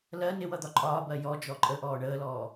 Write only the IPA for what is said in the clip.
lɜ nɪwʌd̪ɒ ǃʼɒːbɜ jɔ d͡ʒɔǃʼə ʔɔːɳəːlɔː

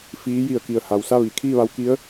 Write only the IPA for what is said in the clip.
fiː˧˥ji˧˩ə̯ki˧˩ə̯ ha˩wsa˥˨ʋi˩ kʰiː˥˨ʋa˧˥wki˧˥ə̯

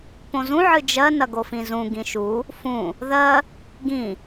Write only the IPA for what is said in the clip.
põzũ ʕɨd͡ʒɜ nɐɡofĩzũ ɡĩʃu | fũ | ðɜ | ɡĩ

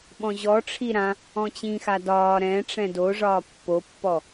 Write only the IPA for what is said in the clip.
ɓɔ̃ʑɔʈ͡ʂʰi ɾã | ɔ̃t͡ɕĩxa dɒː ɾɛ̃ʈ͡ʂɛ̃ doʐɒː pːopːɔ

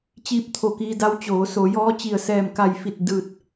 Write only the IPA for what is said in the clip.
t͡ɕiː˧˥p̚ t̪ʰo˧˩kiː˧da˧˥w t͡ɕoː˩˧so˩˧jɔː˧˥t͡ɕi˧˩ə̯ sɛː˧˩mka˧˩jfi˧˩t̚ dɯː˧˩t̚

